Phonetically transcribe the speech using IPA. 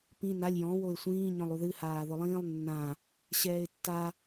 p ĩ n a lʲ j ɔ̃ w o ɪ̯ sʷ ĩː ɲ ɔ̃ lˠ u ð ɨ h aː ð ʊ lˠ ĩː lˠ nː ã | ɕ ɛː ɪ̯ tː a

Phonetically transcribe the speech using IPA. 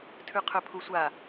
tʰ ʉ qʰ ɵ pʰ u sʷ a

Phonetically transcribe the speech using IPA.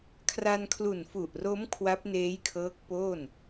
kʰ r a˧ n kʰ l u˨˩ n f u˨˩ ʔ r o˦˥ m kʰ w a˦˥ p̚ n eː˦˥ j kʰ ɤː˦˥ k̚ p oː˥˩ n

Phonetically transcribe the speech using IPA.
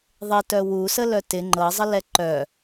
ðˤ ɪ t œ w u s ə l œ t ɪ ŋ͡ǃ ɤ zˤ ə l ɛ ǃ œ

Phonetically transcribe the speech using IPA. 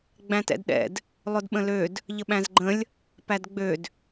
ɡ͡b æ̃ t ɛ̰ d ɗ ɛ̰ d | lˠ ʊ d ɓ ə̃ l ø d | ʎ ə ɓ æ̃ z ɡ͡ǃ ə̃ lʲ | p æ d ɡ͡b ø d

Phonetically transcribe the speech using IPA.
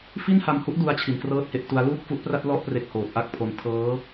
f i˥˩ n h a˧ m h u˦˥ ʔ d u˦˥ a̯ t͡ɕʰ i˧ n k r ɤː˥˩ t̚ h e˦˥ ʔ t u˦˥ a̯ l uː˥˩ k̚ f u˦˥ ʔ p r a˥˩ t̚ l ɔ˥˩ ʔ p r e˦˥ k̚ h oː˨˩ t̚ ʔ a˥˩ k̚ pʰ o˧ n tʰ ɤː˦˥

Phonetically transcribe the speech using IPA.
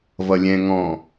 v ʌ lʲ ɛ̃ ŋ ɔ̃

